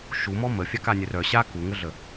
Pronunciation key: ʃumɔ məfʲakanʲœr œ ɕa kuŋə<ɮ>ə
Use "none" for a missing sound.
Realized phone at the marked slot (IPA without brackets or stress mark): ɮ